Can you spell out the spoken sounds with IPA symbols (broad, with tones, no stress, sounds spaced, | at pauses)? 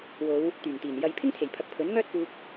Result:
w o˨˧ w | t̪ yː˨˩ ŋ t̪ iː˨˩ n j ɐ˨ j pʰ ɪ˥ ŋ t̪ʰ e˨˩ j pʰ ɐ˨ k̚ pʰ ɵ˨˥ n ŋ œː˥ t̚ p uː˧ k̚